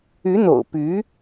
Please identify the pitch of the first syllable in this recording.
rising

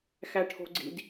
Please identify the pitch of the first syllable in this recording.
high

